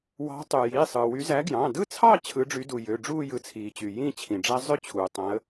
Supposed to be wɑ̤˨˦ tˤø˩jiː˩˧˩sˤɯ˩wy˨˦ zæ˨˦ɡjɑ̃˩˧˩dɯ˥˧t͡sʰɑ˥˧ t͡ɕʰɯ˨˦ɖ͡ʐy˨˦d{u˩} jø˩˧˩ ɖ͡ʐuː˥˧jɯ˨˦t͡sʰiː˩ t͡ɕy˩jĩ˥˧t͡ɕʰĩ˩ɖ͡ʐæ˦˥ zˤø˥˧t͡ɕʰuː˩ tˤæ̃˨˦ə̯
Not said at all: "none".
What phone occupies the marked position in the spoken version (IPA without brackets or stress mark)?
u˩